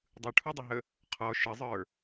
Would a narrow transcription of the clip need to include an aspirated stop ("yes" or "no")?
yes